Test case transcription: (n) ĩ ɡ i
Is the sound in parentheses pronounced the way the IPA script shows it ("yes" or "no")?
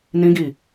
yes